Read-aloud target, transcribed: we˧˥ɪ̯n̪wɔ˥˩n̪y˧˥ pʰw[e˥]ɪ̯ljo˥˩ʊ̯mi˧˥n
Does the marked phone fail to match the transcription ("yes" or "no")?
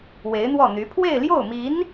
yes